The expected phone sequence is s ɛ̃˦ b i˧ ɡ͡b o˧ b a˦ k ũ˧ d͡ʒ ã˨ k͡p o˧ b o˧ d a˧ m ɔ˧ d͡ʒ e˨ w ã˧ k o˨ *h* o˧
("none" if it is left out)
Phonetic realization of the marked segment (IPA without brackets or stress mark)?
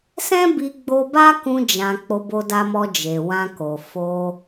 f